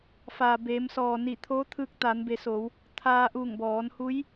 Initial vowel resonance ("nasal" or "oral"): oral